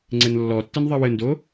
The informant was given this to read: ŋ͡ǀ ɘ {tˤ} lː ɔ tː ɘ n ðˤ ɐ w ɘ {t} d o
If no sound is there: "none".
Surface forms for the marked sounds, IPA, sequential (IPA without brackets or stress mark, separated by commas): n, n